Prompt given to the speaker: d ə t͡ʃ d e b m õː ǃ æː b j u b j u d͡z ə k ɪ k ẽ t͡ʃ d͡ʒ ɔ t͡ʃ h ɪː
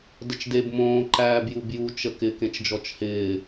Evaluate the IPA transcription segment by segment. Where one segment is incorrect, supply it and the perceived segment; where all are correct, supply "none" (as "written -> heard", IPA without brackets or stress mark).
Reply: d͡z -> t͡ʃ